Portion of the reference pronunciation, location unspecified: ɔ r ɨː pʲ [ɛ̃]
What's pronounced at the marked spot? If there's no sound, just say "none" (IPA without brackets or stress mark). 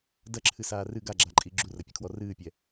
ɛ